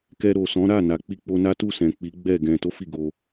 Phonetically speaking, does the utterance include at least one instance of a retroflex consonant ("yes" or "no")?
no